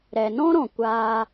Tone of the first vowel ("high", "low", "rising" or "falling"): low